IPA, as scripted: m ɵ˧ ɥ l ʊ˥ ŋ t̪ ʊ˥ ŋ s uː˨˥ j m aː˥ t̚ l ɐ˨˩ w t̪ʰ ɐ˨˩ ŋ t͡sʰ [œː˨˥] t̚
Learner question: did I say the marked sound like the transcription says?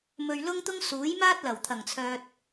no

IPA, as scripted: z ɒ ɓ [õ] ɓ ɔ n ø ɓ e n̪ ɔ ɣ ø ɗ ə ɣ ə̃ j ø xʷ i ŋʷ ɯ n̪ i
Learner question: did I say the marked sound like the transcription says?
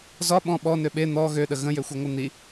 no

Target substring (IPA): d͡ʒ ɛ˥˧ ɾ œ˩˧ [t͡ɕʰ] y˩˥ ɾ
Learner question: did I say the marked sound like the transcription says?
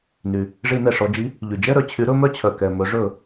yes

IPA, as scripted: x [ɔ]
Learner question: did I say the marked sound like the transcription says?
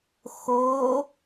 no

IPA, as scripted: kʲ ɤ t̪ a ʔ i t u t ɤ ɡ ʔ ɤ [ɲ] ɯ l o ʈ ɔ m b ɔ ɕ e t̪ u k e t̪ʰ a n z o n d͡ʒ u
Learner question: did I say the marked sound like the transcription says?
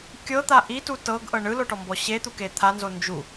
no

